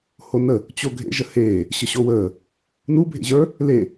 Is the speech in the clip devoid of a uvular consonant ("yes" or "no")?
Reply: yes